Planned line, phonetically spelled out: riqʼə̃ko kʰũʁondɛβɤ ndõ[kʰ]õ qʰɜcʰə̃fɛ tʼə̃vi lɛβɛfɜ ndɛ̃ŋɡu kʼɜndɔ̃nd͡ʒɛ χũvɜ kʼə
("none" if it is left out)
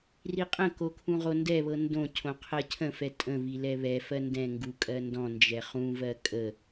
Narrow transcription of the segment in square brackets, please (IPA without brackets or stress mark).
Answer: cʰ